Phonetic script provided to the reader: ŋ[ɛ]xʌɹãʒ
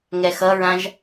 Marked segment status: correct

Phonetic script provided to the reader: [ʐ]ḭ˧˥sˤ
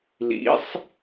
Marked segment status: incorrect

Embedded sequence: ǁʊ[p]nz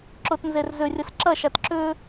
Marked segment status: incorrect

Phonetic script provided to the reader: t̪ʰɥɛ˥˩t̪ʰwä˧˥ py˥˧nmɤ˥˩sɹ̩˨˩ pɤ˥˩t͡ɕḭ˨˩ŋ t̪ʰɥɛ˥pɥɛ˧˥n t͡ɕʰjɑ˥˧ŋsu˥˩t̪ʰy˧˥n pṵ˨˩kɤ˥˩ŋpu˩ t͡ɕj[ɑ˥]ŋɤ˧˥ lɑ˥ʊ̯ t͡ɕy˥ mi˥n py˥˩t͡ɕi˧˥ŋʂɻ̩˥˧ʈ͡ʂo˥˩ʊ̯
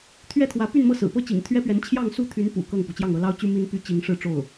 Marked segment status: incorrect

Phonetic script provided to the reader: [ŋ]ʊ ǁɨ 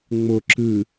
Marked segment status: incorrect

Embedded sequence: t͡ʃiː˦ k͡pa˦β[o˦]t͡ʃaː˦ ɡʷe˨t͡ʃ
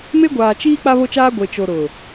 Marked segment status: correct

